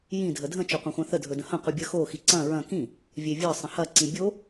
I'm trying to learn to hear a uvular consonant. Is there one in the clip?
yes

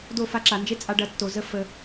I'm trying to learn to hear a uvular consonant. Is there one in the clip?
no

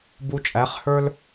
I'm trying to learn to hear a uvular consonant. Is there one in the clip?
yes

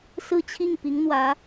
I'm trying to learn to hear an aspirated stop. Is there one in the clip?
yes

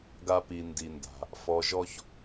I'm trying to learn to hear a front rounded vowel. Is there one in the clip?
no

